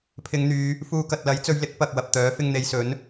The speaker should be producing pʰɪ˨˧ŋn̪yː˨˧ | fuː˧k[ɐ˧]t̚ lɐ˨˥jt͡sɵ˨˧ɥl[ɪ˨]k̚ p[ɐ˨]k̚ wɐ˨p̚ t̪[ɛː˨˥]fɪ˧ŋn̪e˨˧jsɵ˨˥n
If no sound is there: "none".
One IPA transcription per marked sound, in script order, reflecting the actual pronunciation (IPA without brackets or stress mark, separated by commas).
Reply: ɐ˨, ɪ˨˥, ɐ˨, œː˨˥